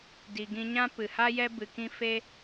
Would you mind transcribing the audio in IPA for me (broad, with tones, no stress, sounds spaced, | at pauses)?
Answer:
d i˨ ɡ ĩ˧ ɲ ã˦ p ɨ˨ h a˦ j ɛ˦ b ɨ˧ k ĩ˦ f e˦